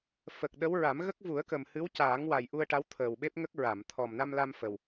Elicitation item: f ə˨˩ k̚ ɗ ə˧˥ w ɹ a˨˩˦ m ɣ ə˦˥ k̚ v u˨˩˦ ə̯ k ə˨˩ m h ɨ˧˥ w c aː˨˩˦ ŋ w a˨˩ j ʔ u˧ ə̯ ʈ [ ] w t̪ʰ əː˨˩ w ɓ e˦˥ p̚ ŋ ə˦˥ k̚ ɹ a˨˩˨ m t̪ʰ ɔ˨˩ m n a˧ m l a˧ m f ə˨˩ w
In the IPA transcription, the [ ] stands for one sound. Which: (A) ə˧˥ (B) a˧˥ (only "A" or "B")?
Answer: B